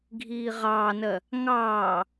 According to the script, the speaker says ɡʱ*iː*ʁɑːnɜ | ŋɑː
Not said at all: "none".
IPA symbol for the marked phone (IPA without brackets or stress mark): iː